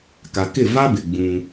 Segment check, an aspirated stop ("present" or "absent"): absent